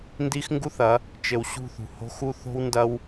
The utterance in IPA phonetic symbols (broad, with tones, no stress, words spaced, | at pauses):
ndi˦xŋɡu˦θɐ˨˦ | t͡ʃɘ˨wɕṳ˦˨θṳ˨ ho̤˦xu˦ θo̤˦wndɐ˦w